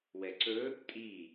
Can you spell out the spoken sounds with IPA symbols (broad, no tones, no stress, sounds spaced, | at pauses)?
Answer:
w ɛ ǀ ɵ | tʼ i